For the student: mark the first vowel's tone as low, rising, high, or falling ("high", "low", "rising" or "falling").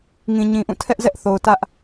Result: low